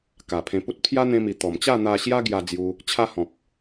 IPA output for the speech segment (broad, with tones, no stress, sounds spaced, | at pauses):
k a˨˩ pʰ ẽ˧ p u˦ t̚ pʰ j a˦ n̪ ẽ˧ m i˨˩ t̪ ɔ˨˩ m t͡ɕ a˥˧ n̪ a˧ ɕ j a˦ ɡ j a˧ d͡z j u˧ | t͡ɕʰ a˧ h ɔ̃˨ k̚